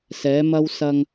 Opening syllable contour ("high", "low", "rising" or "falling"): rising